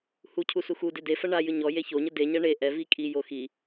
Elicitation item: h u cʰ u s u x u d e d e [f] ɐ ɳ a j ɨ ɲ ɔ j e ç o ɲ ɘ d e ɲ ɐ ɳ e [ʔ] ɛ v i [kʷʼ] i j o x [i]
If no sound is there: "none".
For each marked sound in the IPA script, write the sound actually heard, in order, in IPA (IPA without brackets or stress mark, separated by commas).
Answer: f, ʔ, kʼ, i